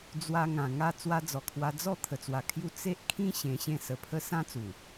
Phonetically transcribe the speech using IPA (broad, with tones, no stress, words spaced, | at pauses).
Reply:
d͡zwa˧ŋã˨˩ ŋa˥˧ t͡swa˧d͡zɔ˨˩kʰwa˧ d͡zɔ˥˧ t̪ʰə˨˩t͡swa˨˩kʰju˧ t͡se˦ʔ kʰĩ˦ ɕẽ˧ɕẽ˥˧sə˧ pʰə˦ sã˦t͡su˨˩